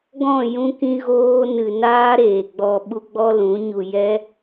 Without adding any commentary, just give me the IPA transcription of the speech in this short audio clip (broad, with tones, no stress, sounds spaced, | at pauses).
ɡ ɔ̃˦˨ j ũ˦ k ĩ˦ ɣ oː˦ n ɨ˨ n aː˦ ɾ eː˨ ɡ͡b ɔ˧ ɓ u˦ ɡ͡b ɔ˦ l ũ˨˦ ɲ u˧ j ɛ˦